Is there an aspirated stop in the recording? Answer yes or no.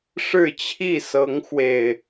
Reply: yes